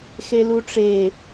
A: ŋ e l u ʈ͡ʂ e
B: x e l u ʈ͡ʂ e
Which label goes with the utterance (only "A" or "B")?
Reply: B